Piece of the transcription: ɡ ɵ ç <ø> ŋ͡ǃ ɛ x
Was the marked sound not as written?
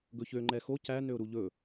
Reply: no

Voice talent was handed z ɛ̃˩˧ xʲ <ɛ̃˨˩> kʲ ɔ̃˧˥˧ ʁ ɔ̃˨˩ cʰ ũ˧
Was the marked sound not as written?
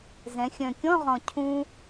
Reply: yes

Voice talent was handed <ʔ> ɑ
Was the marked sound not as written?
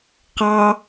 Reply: yes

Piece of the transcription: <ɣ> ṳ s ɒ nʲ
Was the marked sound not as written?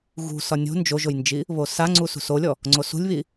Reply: no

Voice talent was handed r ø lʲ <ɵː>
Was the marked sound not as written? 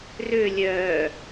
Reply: yes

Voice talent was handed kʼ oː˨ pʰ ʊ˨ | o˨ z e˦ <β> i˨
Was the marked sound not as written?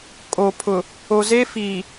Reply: yes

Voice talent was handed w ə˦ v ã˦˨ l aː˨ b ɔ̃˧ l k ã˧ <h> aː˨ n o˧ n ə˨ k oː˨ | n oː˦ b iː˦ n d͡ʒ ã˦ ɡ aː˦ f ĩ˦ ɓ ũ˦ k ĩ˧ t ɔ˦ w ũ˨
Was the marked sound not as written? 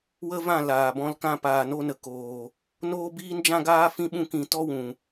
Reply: yes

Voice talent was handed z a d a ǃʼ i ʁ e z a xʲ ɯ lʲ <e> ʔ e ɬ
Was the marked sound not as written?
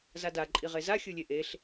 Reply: no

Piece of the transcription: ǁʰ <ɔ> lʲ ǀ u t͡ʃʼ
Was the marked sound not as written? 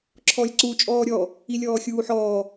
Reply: no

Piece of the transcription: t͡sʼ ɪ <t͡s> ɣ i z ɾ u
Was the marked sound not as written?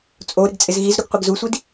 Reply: yes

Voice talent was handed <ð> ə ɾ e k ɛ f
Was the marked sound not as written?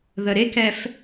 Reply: no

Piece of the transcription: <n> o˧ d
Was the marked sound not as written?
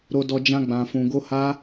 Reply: yes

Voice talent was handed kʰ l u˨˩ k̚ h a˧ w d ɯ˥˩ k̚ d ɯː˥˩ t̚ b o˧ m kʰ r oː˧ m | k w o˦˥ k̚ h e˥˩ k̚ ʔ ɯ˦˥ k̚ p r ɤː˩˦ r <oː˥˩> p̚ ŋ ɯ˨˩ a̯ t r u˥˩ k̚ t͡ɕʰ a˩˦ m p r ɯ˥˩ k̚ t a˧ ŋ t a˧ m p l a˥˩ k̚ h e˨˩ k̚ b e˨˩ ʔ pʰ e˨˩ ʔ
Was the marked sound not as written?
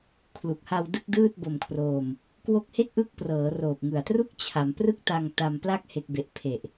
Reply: yes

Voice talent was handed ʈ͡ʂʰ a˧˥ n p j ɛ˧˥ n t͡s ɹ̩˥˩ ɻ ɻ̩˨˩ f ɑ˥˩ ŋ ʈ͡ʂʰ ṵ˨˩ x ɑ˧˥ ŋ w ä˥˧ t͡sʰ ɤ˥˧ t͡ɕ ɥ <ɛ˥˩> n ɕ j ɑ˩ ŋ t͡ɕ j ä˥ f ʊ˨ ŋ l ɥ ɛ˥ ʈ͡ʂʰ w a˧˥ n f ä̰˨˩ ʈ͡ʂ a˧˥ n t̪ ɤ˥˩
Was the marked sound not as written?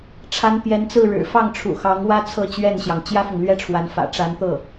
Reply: no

